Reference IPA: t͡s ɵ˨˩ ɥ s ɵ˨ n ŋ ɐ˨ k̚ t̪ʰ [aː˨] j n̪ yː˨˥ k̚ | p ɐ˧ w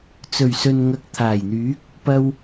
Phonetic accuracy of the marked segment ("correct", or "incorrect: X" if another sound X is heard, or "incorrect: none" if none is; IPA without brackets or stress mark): incorrect: aː˨˩